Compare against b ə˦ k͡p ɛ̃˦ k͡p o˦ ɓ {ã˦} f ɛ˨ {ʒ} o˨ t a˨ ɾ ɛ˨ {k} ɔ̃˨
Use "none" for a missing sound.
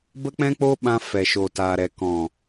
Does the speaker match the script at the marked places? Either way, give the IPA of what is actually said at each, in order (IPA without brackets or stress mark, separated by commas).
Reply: ã˧, ʃ, k